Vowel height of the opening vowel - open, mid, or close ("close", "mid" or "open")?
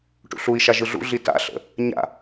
close